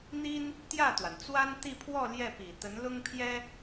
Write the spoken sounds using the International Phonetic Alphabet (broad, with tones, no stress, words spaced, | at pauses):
n̪i˥n | t̪jä˥˩t̪wa˩nt͡swa˥n t̪i˥˧pʰwɔ˥˧ ljɛ˥˩pi˨˩ t̪ə˧˥nlʊ˥ŋpʰjɛ˥